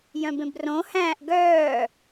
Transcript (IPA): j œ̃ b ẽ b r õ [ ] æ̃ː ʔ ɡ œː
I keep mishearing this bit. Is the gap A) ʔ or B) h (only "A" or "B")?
B